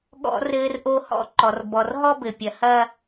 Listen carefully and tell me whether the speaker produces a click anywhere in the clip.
yes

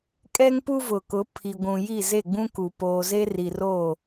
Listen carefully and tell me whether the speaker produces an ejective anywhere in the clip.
yes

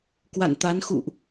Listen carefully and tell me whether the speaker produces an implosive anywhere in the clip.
no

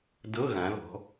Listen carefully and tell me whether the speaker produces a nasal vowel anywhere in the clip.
yes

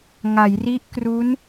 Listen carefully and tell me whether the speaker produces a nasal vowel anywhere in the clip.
no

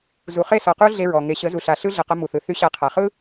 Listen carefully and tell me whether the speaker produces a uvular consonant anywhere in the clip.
yes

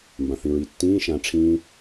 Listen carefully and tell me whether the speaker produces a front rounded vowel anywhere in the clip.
no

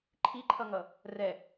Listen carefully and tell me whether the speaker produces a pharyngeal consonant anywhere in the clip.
no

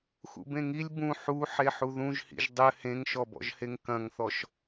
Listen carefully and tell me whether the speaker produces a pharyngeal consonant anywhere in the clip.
yes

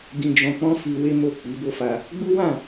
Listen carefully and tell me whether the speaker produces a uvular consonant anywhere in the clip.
no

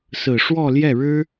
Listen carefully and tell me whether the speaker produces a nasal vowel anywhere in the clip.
no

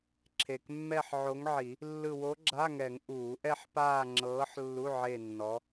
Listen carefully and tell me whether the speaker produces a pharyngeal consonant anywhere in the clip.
yes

